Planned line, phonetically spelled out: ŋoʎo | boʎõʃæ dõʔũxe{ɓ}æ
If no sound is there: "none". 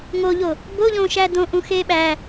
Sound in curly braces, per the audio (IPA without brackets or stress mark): ɓ